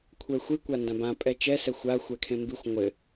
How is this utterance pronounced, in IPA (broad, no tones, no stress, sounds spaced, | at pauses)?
kʷʰ ɛ xʷ i kʷ a n d ã b ã pʼ ɛ t͡ʃ ɛ s ɛ xʷ a xʷ ɛ kʰ ẽ m b i xʷ ŋʷ ɘ